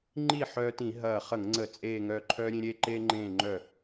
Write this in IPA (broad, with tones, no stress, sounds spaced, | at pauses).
ŋ͡ǃ i˥˩ ħ œː˧ t ĩ˧˩˧ ɦ ɐː˧˩ χ ə˧˩˧ ŋ ŋ͡ǀ ə˧˩˧ t͡sʼ eː˧˩ ŋ œ˧˩ ǃʰ œ˧ ɾʲ ẽ˧ ɾʲ eː˧ ǃ eː˧ ŋ͡ǃ ẽː˧˩ ŋ͡ǃ œ˧˩